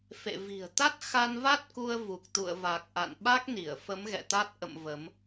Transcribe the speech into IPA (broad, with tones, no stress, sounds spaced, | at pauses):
f ḛ˧˨ v i̤˨˩ ə̯ t̪ a˦˥ t̚ x a˧ n v a˦˥ t̚ k u˧ ə̯ v u˨˩ k̚ t̪ ṵ˧˨ ə̯ v a˨˩ k̚ ʔ a̰˧˨ n ɓ a˦˥ k̚ n i˧˩ ə̯ f ə˨˦ m ɣ ɛ̰˧˨ t̪ a˦˥ t̚ ʔ ə̰˧˨ m v ə˨˦ m